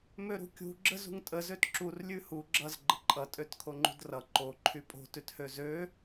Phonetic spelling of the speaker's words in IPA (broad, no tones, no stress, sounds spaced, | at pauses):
m ø ɾ ṳ kʲ ṳ ɡ͡ǁ ə z ṳ ŋ tʼ ə z ø t ǁ u r lʲ ʉ h u ɡ͡ǁ ʌ z ɡ͡ǃ ə ǃʼ ʌ tʼ ø t kʰ o ŋ͡ǃ ṳ d r ʌ ǃ o ǃʰ y pʼ o̤ t ʉ t h ø z ø